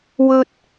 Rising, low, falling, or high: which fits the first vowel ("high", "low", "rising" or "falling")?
high